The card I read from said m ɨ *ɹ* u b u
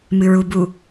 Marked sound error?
no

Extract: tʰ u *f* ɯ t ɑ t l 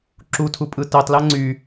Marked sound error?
yes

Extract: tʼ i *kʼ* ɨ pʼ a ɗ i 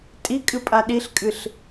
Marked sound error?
no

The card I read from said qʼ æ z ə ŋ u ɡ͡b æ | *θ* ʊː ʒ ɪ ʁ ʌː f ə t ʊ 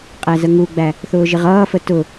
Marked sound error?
no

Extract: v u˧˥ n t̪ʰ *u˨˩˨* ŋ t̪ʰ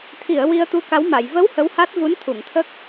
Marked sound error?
no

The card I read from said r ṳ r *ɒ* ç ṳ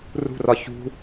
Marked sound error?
no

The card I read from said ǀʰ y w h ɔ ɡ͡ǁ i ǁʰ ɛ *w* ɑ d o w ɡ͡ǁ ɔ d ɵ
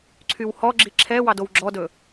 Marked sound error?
no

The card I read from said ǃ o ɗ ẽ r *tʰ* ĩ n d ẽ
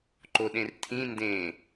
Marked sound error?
no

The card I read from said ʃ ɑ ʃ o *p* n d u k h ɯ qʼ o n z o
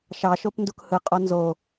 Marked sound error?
no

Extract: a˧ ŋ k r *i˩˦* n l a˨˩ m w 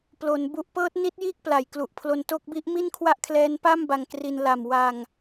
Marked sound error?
yes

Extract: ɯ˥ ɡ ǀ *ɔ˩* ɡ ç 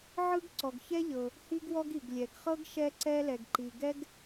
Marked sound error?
no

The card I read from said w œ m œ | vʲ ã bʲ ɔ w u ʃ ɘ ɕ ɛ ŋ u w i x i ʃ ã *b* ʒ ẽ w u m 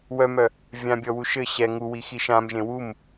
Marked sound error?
yes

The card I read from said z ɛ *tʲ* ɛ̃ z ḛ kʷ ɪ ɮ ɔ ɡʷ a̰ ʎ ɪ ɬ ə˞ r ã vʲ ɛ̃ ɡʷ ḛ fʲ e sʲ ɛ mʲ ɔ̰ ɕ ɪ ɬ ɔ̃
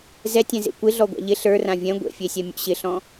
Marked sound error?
no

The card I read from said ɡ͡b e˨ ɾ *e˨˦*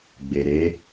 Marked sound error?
no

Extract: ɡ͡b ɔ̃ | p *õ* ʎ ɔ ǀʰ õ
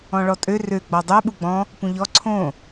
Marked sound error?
yes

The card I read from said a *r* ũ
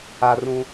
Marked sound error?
no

